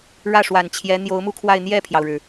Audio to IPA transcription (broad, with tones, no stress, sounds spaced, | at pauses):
ɻ ä˥˩ ʂ w a˨˩ n t͡ɕʰ j ɛ˧˥ n̪ j o˧˥ ʊ̯ m u˥˧ kʰ w a˥˧ ɪ̯ n̪ j ɛ˥˩ pʰ j ɑ˩ ʊ̯ ɻ ɻ̩˩